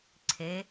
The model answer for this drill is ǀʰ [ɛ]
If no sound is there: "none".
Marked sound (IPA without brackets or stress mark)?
e